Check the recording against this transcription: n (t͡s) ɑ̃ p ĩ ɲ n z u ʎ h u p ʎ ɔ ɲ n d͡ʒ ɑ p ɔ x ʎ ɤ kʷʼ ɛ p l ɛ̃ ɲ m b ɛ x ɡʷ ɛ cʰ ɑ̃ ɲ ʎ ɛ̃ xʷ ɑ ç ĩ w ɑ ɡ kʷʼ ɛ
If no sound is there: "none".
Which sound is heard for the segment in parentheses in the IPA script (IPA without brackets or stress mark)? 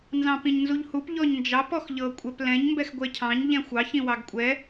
z